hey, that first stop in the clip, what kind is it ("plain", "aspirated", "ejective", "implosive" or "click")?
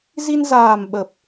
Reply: implosive